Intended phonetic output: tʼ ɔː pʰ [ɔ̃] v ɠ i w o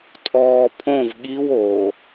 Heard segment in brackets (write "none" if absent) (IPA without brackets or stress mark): õ